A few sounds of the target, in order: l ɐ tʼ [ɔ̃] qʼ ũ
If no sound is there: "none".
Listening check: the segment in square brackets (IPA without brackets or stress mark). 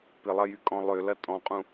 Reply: ɔ̃